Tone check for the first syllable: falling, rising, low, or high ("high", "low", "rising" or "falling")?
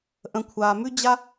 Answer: low